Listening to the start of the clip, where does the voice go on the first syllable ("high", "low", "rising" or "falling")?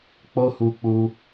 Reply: high